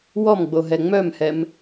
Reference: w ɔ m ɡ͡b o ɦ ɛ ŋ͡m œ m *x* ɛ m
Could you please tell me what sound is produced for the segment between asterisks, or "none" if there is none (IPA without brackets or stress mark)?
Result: h